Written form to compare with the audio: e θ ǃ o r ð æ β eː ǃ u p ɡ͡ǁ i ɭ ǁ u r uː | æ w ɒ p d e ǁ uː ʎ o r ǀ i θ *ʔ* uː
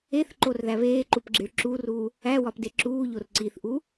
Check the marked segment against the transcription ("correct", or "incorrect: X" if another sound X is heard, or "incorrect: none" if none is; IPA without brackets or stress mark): correct